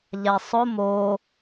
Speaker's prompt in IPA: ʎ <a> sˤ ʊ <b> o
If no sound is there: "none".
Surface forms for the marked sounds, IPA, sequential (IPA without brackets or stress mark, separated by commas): a, m